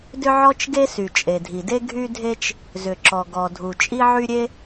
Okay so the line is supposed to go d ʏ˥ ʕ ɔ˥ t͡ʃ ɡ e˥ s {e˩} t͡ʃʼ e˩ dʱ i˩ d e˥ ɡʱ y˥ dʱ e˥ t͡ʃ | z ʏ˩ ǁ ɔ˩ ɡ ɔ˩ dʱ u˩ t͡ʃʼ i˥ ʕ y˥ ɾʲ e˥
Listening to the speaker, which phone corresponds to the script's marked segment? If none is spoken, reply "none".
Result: y˩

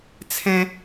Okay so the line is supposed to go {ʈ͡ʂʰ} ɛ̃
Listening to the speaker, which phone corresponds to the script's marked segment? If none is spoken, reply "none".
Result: t͡sʰ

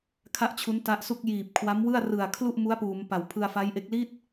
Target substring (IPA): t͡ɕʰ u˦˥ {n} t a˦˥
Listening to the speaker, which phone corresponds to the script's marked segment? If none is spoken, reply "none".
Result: n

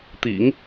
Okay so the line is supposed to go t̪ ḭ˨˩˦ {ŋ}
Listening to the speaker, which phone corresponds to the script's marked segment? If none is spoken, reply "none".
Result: ŋ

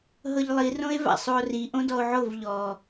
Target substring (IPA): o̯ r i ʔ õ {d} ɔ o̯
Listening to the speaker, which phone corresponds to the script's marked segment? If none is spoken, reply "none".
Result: d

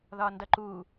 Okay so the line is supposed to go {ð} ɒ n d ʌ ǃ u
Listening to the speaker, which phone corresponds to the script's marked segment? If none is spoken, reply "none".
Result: ð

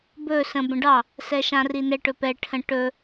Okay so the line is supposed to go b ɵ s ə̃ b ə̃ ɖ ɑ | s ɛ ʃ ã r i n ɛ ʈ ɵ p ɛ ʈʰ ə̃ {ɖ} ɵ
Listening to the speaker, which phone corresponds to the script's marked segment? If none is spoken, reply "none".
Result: ʈ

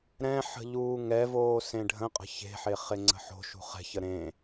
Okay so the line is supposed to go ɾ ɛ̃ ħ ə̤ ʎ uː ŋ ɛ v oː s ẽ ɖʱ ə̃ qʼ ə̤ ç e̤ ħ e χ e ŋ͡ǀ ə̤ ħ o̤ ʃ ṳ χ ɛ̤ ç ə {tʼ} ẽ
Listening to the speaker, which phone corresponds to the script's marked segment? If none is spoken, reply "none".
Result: ɾ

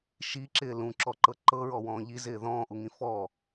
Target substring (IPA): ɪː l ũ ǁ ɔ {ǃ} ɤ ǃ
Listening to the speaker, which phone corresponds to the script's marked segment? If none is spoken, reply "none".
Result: ǃ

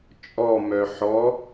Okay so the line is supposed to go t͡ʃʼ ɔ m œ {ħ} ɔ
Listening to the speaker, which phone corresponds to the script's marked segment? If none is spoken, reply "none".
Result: ħ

